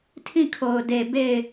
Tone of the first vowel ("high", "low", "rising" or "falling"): falling